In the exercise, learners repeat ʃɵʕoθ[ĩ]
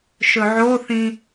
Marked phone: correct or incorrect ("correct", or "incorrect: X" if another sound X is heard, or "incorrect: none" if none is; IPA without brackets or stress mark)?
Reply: correct